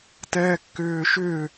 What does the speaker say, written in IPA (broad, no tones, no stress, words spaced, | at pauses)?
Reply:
tɛːkːʏːʃʏː